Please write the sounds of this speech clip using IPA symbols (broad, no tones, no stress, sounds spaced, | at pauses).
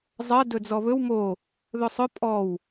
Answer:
zˤ ɜ d ɵ d͡z ɔ β ɵ w m o | ð ɵ sˤ ɵ pʼ ɔ w